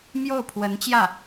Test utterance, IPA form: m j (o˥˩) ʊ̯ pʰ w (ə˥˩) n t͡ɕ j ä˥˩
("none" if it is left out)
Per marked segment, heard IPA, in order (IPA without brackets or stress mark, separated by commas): o˥˩, ə˧˥